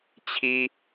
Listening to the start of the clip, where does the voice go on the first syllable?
high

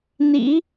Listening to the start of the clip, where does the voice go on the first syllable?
rising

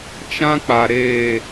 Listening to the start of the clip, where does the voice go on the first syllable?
high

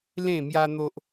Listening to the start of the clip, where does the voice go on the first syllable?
falling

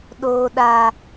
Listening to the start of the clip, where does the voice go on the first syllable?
low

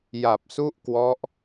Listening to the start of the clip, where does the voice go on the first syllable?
low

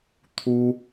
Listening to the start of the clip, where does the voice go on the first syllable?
high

